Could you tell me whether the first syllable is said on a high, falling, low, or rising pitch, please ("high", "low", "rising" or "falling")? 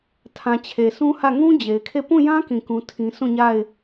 low